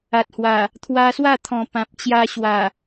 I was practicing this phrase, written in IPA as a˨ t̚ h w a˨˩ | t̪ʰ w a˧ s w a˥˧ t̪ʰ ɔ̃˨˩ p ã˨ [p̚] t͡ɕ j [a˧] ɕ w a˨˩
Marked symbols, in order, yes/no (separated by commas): yes, yes